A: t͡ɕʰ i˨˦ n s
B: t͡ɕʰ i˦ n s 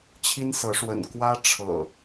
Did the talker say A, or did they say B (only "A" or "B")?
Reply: B